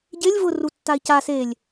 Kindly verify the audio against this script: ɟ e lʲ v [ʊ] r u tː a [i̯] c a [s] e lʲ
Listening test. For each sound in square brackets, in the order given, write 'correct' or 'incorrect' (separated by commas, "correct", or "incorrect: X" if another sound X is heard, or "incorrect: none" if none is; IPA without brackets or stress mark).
correct, correct, correct